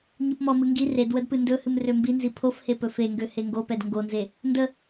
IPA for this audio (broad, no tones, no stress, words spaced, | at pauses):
ɲɯpmɔmɨ ŋɡi red wədpɨndɵhɨm rømbinzi pʰofhe pɵfeŋɡø heŋɡopɛd ŋɡonze | ndə